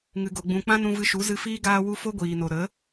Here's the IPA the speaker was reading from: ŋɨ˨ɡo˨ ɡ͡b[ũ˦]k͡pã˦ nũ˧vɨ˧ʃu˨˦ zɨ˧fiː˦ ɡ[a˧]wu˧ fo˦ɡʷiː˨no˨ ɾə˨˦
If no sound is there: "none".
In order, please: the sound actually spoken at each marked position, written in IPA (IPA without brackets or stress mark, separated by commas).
ũ˨, aː˧